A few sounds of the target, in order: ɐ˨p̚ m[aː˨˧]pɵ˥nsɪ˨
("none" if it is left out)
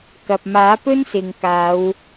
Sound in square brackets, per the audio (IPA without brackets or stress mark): aː˨˥